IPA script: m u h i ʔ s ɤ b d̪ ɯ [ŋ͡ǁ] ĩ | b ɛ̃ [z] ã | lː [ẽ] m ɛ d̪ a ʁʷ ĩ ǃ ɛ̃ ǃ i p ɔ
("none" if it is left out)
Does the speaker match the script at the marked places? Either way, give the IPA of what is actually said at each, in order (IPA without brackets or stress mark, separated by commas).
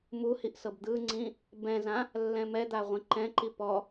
ŋ͡ǀ, z, ɛ̃